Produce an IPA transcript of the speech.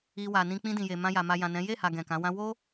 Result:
i˧ wa˨nĩ˧ k͡pĩ˧dĩ˨je˨ mã˧ja˨ ma˨ jã˨nɛ̃˨˦ je˦˨ha˨ ɡɛ̃˨kã˨˦wã˦ wo˦

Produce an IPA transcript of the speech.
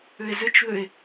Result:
ʏe̯zʏt͡ʃðʏe̯

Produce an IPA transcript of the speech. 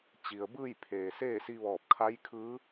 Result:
t͡ɕi˩ə̯bɯː˥˨jpʰeː˩ seː˥˨si˧ʋɔː˧˩p̚ kʰa˧˥jkʰɯː˧˥

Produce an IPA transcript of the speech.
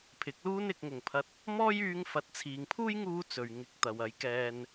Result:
pʰɪ˨˥k̚luː˥n ɪ˨k̚ŋʊ˨˩ŋpʰɐ˧t̚ | mɔː˥jyː˧ŋ fɐ˨˥t̚t͡sʰiː˨ŋpʰuː˥jŋuː˧ t͡sɵ˨ɥŋɪ˨˥k̚ t̪ɐ˨w ɐ˨˥jkɛː˧n

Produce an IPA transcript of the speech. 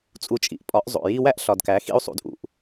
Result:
t͡sʼu˨t͡ʃʼḭ˨ʔ pʼɒ˨˦ʔzˤo̰˨ ji˧ wæ˦ʔɬɒ˨dkæ˨˦ xḭ˦u̯sˤṵ˧dʔṵ˧ʔ

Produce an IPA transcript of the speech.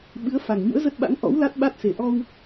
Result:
ɓɨ˨˦ə̯ fa˨˩ŋ ɲṵ˧˥ə̯zə˦˥t̚ɓa̰˧˥ŋ ʔɔ̰˧˥w la˦˥t̚ɓa˦˥t̚se˨˩ ʔɔ˧w

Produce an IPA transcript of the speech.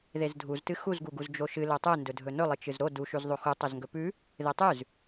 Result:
ðezdʱuztɨ xuzɡuɡuz d͡ʒoʃɨ lotˤɨ ndɵdʱɵnɵlˠɨ t͡ʃɨzɾo duʃʉz ðˤoxu tˤozŋɡɵpʉ | ðetˤʉz

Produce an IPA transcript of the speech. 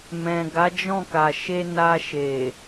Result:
mɛ̃˨ɡa˨˦d͡ʒɔ̃˦˨ka˨ ʃe˧na˧ ʃe˨

